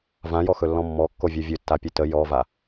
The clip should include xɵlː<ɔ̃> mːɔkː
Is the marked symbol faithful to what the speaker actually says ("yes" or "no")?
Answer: yes